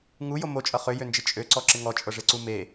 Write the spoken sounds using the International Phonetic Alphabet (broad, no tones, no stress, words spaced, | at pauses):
ŋujo mot͡ʃʼʌ χøjønd͡ʒɪ t͡ʃʼøǀɔǁɪ ŋɔt͡ʃʼɤʐeǀu me